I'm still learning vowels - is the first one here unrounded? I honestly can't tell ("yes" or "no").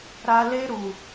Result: yes